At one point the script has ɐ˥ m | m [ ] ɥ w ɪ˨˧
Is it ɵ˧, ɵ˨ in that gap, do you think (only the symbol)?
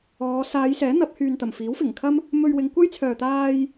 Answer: ɵ˧